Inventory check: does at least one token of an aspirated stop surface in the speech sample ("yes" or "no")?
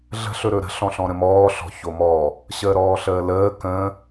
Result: no